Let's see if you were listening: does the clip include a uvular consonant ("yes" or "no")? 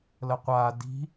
yes